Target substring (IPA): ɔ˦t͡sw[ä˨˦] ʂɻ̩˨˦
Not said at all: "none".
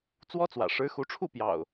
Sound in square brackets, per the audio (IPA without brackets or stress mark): ä̰˨˩